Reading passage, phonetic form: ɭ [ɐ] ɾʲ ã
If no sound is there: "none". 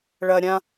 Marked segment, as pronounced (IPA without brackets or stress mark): ɐ